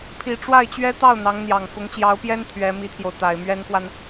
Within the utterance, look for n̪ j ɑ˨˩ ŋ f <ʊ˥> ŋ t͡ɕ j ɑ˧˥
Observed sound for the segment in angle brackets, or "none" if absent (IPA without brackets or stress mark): ʊ˧˥